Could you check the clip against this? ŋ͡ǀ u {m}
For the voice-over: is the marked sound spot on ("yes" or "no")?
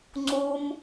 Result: yes